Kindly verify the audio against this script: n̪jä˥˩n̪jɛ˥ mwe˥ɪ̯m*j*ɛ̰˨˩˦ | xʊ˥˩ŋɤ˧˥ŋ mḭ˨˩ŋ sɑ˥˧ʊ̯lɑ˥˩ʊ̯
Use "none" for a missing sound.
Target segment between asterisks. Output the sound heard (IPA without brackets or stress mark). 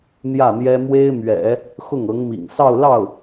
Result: ɥ